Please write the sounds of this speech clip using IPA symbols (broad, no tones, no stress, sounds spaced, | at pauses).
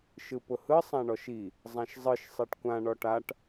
ʃ ɯ p ʊ h ɯ sˤ ã ɳ ɔ ʃ i | zˤ ã ʃ zˤ ɯ ʃ sˤ e ʈ kʷ ã ɳ ɔ ʈ a ʈ